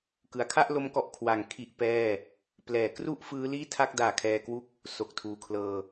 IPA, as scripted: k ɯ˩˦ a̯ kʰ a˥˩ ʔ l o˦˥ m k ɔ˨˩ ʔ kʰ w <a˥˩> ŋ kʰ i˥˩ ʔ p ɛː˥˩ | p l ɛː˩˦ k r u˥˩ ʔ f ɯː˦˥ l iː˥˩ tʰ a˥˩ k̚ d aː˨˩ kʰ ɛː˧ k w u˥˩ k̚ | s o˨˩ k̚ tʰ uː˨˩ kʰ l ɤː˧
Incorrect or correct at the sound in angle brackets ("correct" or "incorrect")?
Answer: incorrect